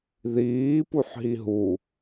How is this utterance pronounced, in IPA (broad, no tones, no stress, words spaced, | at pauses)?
ðiː puħɦiɦu